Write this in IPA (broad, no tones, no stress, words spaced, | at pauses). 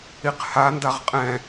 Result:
iqhandaʁ qʼɛ̃